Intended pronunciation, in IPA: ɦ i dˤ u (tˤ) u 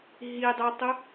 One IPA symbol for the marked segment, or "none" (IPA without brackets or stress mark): tˤ